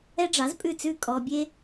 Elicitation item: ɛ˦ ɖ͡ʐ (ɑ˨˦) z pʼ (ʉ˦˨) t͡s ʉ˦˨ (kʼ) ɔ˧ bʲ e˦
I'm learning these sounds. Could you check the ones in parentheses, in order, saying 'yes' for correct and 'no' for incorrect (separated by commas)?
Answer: yes, yes, yes